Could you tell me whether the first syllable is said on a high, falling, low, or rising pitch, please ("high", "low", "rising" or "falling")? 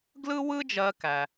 high